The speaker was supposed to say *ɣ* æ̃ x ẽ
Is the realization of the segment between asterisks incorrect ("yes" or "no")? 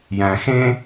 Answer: yes